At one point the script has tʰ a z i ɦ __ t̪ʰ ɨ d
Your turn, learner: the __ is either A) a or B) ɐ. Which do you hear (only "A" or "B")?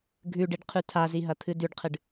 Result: B